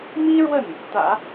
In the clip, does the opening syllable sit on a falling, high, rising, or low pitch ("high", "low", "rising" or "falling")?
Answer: high